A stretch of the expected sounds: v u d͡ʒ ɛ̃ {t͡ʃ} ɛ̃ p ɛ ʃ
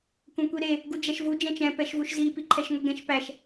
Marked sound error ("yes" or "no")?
no